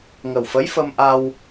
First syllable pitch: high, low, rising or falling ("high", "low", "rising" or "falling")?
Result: low